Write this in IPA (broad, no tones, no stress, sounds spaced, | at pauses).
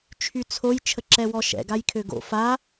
t͡ʃʰ y t͡sʰ o j t͡ʃʰ ə ǁ ɛ w ɔ ʃ ɛ̰ ɡ a j kʰ ø ɡ o̰ f a